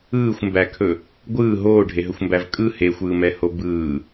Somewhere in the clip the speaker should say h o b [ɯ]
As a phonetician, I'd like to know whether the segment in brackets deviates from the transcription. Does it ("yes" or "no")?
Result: yes